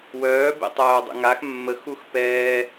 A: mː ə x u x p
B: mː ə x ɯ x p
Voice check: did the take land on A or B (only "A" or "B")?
A